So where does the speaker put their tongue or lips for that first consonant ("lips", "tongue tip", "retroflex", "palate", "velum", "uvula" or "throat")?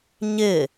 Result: palate